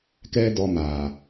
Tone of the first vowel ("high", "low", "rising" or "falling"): high